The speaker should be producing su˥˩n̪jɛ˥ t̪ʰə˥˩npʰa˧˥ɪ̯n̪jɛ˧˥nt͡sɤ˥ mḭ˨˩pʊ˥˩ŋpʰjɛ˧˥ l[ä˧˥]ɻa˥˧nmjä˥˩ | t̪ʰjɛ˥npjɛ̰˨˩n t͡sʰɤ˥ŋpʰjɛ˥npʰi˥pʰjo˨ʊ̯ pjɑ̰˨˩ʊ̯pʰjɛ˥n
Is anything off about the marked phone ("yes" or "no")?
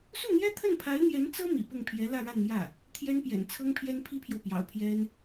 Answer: yes